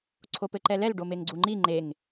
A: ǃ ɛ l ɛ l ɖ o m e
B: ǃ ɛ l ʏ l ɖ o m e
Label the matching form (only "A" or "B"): A